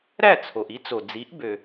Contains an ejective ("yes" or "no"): no